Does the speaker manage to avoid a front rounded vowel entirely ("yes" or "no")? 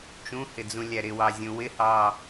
yes